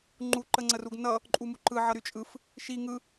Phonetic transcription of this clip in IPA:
ŋ͡ǃ u ǃ ə ŋ͡ǀ ə r u ɡ n ʌ | ǃʼ u m u ǃ ɯ ʕ ʌ ɾ y t͡ʃʼ ɯ f | ʃ i ŋ ɯ

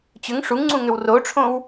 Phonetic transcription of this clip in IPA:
t͡ɕ ʏ ŋ ʂ u ŋ ŋ͡ǀ ũ ŋ ʏ w r o ʈ͡ʂʰ õ w

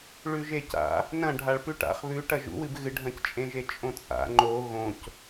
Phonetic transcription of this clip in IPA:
ɭ ʉ ʒ e c a̰ | n ɐ̃ ɖʱ a ɭ p ʉ ʈ a̰ χ β ʉ ʈ ɐ ʒ ṵ w ɨ b ɣ ɨ ɖʱ ɐ̃ c t͡ʃʼ ẽ ʒ e t͡ʃʼ õ t͡sʼ a̰ ŋ͡ǃ o ɣ õ c

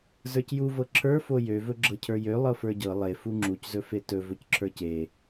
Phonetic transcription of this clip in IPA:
z ə˞ c j u v ɤ ǁʰ ə˞ f o j ø v ɵ ɡ͡ǁ ɤ cʰ ə˞ j ø lˠ ɤ f ə˞ ɟ ɤ lˠ e f u ŋ͡ǁ u c z ɵ f e t ɵ v ɵ c ǁʰ ə˞ c e

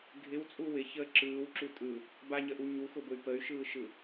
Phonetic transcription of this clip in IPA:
ɡʱ ɪ w t͡sʼ u w ɪ ç əː ǁ ɯː w ǁ u tʼ ɯ | b a ɲ ə ʔ u ɲ u x ʊ b ʊ y̯ p ə y̯ ʃ ɯː ʃ ɯ

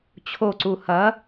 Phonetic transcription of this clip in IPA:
t͡ɕʰ o ǀ u h ɐ

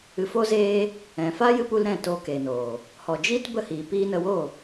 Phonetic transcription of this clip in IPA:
ɨ˨ f oː˧ z eː˧ | ɛ̃˨ f aː˦ j ɨ˧ p u˧ l ɾ ɛ̃˦˨ t oː˧ k eː˨ n oː˨ | h ɔ˨ d͡ʒ iː˦ t b ə˦ h iː˨ p iː˦ n ə˧ w o˦˨

